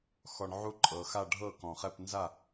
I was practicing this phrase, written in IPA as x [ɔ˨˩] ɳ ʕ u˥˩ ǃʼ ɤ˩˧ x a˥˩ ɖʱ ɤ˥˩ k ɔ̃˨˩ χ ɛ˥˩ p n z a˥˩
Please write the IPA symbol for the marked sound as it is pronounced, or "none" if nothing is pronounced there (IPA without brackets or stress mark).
ɔ˨˩